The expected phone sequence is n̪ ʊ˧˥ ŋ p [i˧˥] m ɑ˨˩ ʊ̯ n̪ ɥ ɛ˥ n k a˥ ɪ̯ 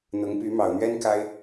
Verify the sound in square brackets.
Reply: incorrect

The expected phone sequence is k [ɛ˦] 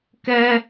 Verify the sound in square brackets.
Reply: correct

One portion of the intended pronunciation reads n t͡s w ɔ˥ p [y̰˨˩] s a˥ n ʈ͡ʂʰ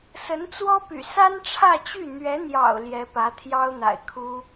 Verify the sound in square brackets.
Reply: correct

